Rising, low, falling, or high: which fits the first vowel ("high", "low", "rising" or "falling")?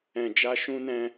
low